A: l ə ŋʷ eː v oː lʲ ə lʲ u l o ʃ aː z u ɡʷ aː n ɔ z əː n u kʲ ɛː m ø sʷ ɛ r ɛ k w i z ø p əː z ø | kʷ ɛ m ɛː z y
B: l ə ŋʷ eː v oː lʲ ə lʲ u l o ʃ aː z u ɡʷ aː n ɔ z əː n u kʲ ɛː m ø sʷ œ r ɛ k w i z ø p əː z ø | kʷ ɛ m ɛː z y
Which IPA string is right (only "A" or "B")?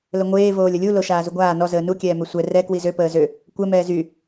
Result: A